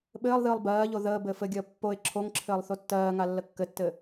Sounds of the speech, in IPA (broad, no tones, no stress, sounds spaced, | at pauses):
ɓ ɘː lˠ ð ɨː lˠ b ɜː ʎ o ð əː b ɘː f ɘ ɡʲ əː pː o ɪ̯ ǁʰ o ŋ ǁʰ ɘː lˠ θ o tː ɜː ŋ a lː ə kː ɘ tː ɘ